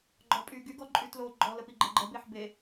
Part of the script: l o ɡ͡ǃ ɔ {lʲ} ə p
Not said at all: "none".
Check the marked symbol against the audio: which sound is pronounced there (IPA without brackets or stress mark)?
l